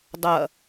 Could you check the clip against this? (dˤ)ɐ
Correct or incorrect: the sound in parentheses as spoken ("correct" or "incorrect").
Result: correct